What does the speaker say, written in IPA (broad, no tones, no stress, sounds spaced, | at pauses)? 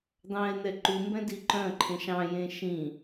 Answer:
d̪ ɑ̃ ɪ̯ n̪ ɛ ǃ u m b ɛ̃ d i ǃ œ̃ ǃʰ ẽ ʃ ɑ̃ j ẽ ʃ ĩ